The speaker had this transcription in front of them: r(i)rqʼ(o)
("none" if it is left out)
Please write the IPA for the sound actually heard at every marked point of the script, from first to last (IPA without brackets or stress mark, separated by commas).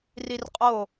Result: i, o